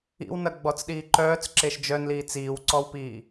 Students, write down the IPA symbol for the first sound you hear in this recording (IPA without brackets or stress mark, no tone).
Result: ḭ